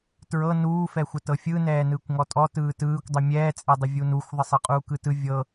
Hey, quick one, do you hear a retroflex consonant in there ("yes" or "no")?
no